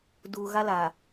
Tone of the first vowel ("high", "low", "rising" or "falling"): low